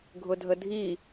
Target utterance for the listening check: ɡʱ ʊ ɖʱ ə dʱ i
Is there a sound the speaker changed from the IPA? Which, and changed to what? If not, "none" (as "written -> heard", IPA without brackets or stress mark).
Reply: ɖʱ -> dʱ